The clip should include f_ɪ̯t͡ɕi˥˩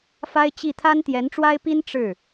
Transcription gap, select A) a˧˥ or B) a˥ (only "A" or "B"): B